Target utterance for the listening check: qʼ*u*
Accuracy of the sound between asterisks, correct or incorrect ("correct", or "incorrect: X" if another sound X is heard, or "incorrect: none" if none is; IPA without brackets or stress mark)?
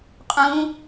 incorrect: ũ